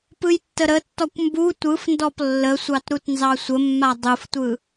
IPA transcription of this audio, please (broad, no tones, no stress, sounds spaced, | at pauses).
p ɯ j tː ə ɾ ə tː ɔ kʷ m b u tʷ ɯ f n d ɔ p lː ə sʷ ɑ t ɾ u t n z ɑ sʷ ə mː a dˤ ɯ f tʷ ɯ